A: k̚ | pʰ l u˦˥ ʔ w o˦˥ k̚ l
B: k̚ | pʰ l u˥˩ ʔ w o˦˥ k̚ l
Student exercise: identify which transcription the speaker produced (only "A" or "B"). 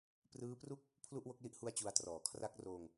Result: B